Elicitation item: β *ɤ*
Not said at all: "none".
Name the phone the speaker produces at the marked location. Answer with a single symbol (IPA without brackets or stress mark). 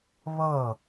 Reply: ɤ